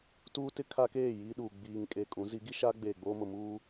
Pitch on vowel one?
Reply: high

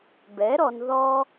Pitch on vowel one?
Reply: rising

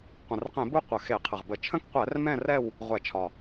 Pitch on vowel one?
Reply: low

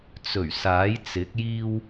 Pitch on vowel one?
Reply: low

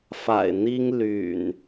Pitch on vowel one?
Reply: low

